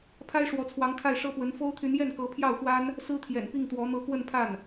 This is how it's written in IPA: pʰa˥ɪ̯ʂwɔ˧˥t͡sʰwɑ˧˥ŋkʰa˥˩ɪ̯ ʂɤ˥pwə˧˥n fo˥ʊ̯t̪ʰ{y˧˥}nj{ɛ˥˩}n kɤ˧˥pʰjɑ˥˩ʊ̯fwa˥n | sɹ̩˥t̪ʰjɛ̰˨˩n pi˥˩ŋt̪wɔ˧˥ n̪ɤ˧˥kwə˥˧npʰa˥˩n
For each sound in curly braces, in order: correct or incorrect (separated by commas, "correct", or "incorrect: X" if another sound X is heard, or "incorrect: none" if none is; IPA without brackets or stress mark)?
correct, correct